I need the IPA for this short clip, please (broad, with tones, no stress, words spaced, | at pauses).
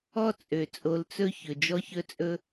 ɔ˦t͡sʼø˨t͡sʼo˧lt͡sɵ˦ çɵ˨d͡ʒɔ˦çɵ˦t͡sʼɵ˦